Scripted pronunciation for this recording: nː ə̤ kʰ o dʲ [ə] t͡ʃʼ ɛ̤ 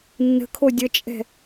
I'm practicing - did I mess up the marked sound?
no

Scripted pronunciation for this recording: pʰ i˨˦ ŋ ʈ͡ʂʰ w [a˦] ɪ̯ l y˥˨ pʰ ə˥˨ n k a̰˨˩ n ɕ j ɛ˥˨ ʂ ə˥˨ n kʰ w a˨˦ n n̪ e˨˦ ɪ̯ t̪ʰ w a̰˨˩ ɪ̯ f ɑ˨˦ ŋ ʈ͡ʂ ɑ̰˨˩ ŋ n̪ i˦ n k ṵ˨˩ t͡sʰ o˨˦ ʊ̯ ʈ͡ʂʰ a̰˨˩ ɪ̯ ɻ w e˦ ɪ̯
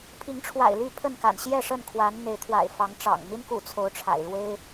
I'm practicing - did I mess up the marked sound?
yes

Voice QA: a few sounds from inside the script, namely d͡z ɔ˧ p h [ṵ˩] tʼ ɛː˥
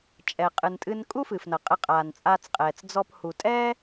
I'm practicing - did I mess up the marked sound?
yes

